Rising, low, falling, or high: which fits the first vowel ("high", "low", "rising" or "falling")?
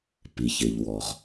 low